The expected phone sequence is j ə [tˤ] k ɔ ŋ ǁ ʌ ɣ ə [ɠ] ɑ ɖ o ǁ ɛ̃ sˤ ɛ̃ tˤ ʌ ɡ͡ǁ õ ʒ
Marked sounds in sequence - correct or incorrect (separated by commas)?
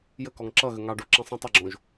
incorrect, incorrect